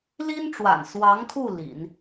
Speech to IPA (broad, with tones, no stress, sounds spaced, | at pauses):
l i˥ n ʈ͡ʂ w a̰˨˩ n s w ɑ˧˥ ŋ kʰ u˥˩ l ḭ˨˩˦ n